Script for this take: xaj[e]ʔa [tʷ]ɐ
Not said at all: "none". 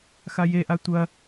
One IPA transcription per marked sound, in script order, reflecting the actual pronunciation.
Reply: e, tʷ

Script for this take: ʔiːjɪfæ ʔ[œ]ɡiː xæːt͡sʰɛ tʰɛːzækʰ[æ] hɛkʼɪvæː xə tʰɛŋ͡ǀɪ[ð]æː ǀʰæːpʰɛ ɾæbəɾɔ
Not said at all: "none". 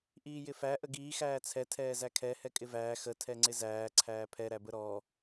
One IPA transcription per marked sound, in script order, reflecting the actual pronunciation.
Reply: ə, ɛ, z

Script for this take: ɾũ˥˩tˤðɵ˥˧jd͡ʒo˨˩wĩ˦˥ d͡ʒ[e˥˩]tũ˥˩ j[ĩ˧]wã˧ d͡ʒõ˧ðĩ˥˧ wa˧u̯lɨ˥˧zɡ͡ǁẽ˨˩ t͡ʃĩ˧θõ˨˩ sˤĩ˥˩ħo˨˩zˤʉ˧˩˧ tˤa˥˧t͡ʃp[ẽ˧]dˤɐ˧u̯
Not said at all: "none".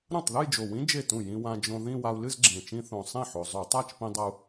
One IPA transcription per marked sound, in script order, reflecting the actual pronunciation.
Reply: e˥˩, ĩ˧, ĩ˧

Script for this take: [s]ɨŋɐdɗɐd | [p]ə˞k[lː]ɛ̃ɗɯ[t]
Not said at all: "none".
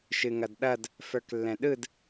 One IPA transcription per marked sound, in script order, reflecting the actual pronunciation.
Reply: ʃ, f, lː, d

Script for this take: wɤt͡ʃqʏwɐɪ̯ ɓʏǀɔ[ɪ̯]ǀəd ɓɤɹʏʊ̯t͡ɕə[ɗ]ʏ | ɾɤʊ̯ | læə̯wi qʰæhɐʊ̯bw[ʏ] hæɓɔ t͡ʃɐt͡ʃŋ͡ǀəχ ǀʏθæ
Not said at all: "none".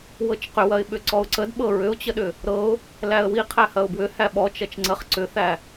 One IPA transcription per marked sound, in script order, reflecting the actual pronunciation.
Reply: ʊ̯, ɗ, ʏ

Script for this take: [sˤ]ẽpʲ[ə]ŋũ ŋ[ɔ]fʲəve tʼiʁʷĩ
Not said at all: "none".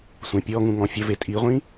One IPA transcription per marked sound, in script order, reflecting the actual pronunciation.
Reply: sʷ, ɔ, ɔ̃

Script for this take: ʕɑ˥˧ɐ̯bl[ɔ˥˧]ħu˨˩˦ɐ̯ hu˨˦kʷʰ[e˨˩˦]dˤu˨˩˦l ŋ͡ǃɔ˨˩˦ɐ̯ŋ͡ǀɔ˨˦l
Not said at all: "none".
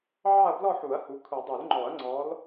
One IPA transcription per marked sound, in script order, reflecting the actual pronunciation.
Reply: ɔ˥˧, i˨˩˦

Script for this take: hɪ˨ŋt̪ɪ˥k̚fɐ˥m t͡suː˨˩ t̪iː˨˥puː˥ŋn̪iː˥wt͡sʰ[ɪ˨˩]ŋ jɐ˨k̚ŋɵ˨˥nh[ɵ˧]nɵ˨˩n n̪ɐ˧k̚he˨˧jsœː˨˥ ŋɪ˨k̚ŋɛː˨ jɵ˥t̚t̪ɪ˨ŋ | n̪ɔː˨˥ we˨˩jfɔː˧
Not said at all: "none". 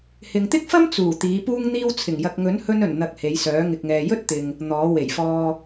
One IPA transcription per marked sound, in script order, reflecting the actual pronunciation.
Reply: ɪ˨˩, ɵ˧

